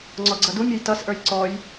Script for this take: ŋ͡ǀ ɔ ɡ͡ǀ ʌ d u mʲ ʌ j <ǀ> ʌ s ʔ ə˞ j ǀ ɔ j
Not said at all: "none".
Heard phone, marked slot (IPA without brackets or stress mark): t